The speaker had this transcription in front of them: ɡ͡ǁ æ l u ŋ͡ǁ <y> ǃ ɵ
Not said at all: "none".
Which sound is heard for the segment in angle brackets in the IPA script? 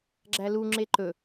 e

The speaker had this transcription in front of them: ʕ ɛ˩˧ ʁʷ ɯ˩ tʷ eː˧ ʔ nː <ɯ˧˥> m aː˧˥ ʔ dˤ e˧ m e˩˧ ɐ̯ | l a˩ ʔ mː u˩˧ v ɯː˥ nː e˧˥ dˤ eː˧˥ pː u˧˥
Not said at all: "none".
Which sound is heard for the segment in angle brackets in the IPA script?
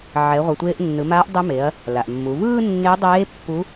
ɯ˩˧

